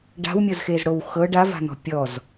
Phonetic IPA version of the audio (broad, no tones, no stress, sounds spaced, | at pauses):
ɖ a̤ w mʲ ɤ z x e z ɽ o w x ɤ ɖ a v a̤ n̪ ɔ̤ pʲ ɔ z